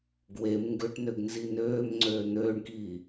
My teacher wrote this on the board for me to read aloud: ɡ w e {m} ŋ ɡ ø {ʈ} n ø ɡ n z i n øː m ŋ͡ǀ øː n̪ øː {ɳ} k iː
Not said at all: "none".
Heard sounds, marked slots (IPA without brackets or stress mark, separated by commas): m, ʈ, ɳ